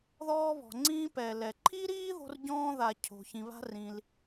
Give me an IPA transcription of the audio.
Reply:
ðɔː˥βɔ̤˩ŋ͡ǀĩː˥ pɛ˩lɛ˩ǃʰi˥ɾiː˥ ðo̤˥rɟɔ̃ː˥ða˩ cʰo̤˩ çĩ˩βa̤˥rĩ˩l

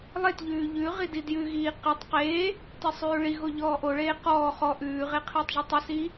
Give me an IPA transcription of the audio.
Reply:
lˠetʎʉː ʎʉ ʁididjʉɣiː qetˤ qeː | tesˤʉːɭiɣo ʎɔːʔoɭeː qɔː χɔ ʔʉːʁe qʰeːtˤʒutˤisiː

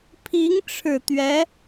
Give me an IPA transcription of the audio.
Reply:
pʰi˧˥ŋʈ͡ʂʰɻ̩˨˩ t̪ɥɛ˧˥

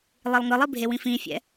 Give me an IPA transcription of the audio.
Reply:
lˠilˠŋɯlˠibʱe wĩfĩfʲɛ̰

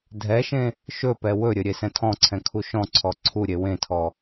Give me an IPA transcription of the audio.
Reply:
dʱɛʃẽ | ʃɵpɛ wɵɾʲɘ ɾʲesɛ̃tʰɔ̃ǀʰɛ̃ kʰuʃɔ̃ǀʰɔ ǀʰu ɾʲewẽtʰɔ

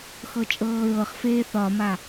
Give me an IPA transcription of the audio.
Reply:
xɤt͡ʃʼɤːɹɤχfeː θɒma

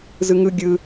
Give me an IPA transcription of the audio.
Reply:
zɯŋɯ ɡʲɯ

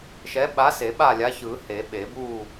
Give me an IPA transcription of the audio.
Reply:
ʃɛ˨˥ɓa˨˥se˨˩˦ ɓa˥˨lʲa˨˥çɯ˨˩˦ he˨˩˦ɓe˨˩˦ bu˥˨

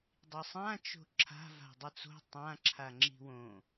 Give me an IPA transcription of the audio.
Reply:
dˤisˤã t͡ʃo̤ǁʰa̤ va̤dˤɯt͡so̤ tˤãǁʰa ŋ͡ǁi̤wõ

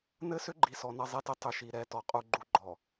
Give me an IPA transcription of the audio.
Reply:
nɘ˦sʏ˦ɡ͡ǃi˨sɔ˨ nʌ˦zˤɛ˦tɘ˦ tˤʏ˨ʃi˨ ɾɛ˦˨tɔ˨qʼu˦ ɡ͡ǃu˦ɡ͡ǃɔ˨

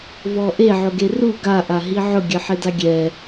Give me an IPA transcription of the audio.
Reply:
vɔʔe ʕʊɡeru ɡa ʔaɦiʕʊ ɡʲɘħedaɡʲɛ

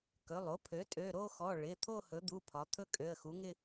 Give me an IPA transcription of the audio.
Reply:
kɵ˩˧˩lˠ o˩˥pʰø˩˥ tʼø˩˧˩ɾo˥˧xɔ˩˧˩ ɭɪ˩˧˩ t̪ʰo˥˧hɵ˩˥d̪u˩˧˩ pʰɒ˩˥ t̪ʰɵ˥˧kʼø˩˧˩ə̯xu˩˥ŋɪ˥˧

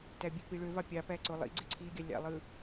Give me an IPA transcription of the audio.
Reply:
tæbʲøpi ɭøvɑ pʲɑpæ ǀolˠḭ ɡ͡ǀeǀʰiɡʲɑ lʲɑ̰lˠɯ

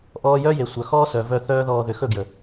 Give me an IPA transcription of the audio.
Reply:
ʔɔː˧jœ˦je˨ sʷœ˨xɔː˦sœ˨vœ˧ θœː˦ðɔː˧ ðʏ˨xɵ˦˨ɡjə˨

